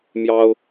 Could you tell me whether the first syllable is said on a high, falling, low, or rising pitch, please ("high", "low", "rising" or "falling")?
high